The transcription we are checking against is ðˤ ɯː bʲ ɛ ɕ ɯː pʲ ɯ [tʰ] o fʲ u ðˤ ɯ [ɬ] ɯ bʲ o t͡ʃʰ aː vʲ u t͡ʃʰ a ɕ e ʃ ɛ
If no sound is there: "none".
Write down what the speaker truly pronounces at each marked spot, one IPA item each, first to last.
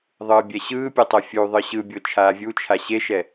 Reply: tˤ, ɕ

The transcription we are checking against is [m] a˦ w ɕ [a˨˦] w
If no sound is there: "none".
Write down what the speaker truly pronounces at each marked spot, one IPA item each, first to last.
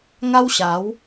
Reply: ŋ, a˨˦

